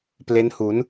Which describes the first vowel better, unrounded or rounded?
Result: unrounded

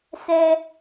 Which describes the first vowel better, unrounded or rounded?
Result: unrounded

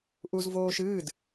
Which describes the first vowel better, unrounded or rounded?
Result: rounded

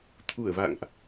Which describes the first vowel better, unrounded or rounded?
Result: rounded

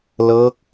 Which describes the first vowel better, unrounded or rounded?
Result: unrounded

